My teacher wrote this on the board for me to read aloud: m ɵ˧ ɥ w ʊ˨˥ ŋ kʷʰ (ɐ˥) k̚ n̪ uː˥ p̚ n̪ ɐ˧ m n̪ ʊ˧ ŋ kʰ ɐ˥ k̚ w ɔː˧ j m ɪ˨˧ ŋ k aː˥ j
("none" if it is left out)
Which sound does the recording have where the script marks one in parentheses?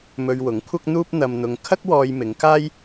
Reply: ɐ˥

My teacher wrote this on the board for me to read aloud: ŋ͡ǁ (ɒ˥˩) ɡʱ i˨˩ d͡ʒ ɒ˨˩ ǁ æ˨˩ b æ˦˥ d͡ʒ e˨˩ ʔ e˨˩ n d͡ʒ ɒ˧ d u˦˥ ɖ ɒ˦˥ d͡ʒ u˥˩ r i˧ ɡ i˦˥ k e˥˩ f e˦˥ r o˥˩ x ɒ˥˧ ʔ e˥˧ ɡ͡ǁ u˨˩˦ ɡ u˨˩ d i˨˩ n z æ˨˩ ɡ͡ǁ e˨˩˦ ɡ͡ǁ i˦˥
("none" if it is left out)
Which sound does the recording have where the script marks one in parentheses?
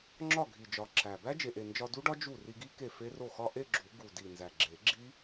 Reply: ɒ˥˩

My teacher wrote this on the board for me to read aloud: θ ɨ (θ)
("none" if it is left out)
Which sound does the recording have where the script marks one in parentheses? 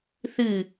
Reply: none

